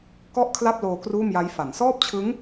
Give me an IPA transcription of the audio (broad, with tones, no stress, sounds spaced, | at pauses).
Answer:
k ɔ˥˩ ʔ kʰ l a˥˩ p̚ l oː˧ k r uː˥˩ m j a˦˥ j f a˩˦ n s ɔː˥˩ p̚ t͡ɕʰ ɯ˦˥ ŋ